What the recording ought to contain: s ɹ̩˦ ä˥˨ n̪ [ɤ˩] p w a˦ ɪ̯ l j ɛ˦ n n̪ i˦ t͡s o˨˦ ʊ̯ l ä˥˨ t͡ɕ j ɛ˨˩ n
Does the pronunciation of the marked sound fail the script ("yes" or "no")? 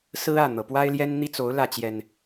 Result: no